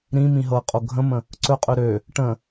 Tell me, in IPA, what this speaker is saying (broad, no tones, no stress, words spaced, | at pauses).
ɾĩmĩ ɦɤqʼo ɡʱə̃mə̃ | ǀɵqʼɵ ɾø | ʈə̃